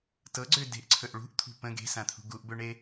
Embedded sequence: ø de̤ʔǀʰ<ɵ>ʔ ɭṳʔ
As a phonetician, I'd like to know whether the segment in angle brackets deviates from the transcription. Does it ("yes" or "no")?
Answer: no